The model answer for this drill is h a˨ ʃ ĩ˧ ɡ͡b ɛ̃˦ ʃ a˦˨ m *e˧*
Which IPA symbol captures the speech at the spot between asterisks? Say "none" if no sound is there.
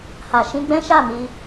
i˧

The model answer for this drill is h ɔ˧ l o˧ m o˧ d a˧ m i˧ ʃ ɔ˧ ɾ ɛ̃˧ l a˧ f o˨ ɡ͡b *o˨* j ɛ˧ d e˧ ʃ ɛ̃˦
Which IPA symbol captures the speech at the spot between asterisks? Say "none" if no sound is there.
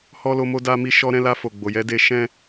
o˨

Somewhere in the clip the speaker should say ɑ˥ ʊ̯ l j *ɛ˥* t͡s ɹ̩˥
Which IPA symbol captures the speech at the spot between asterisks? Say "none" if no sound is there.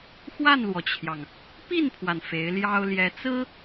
ɛ˧˥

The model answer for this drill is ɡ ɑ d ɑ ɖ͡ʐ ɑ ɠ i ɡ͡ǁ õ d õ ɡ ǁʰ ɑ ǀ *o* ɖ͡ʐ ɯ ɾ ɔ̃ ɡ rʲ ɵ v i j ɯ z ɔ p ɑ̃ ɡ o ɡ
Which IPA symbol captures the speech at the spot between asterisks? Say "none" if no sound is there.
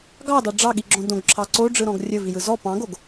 o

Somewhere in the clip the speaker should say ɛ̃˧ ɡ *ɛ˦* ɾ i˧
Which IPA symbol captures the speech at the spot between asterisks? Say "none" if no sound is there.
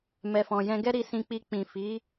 ɛ˦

